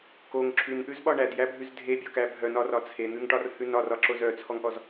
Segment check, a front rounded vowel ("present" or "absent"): present